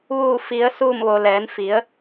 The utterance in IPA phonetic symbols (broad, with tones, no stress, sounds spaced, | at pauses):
ʋ uː˧˩ f i˩˧ ə̯ s uː˧˩ m ʋ o˩ l ɛː˩˧ n f i˩˧ ə̯